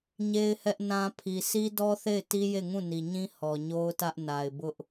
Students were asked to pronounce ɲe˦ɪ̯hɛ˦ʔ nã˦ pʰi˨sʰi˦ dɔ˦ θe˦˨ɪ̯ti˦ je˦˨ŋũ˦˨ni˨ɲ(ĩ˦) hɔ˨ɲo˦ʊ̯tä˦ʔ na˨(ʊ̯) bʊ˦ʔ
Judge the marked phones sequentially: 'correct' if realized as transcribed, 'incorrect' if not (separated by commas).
correct, incorrect